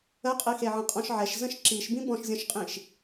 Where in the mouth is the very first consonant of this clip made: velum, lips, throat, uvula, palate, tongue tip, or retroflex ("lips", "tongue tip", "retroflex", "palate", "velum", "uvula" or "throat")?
uvula